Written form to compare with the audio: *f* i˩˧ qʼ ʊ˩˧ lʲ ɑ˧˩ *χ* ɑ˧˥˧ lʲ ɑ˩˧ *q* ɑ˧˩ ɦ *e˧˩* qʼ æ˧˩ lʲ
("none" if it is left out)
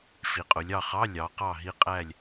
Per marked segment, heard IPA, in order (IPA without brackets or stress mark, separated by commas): f, χ, q, i˧˩